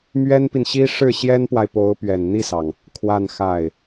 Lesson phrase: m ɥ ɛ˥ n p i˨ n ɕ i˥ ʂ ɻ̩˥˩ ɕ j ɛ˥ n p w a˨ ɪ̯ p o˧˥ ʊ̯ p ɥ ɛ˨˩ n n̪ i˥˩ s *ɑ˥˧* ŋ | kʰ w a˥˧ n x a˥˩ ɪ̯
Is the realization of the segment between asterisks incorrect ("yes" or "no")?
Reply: yes